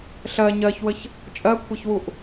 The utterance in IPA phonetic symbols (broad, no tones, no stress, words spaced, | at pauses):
ɬɜ ɲɜçwəç | t͡ʃʼɜkʷʰeçwuʔ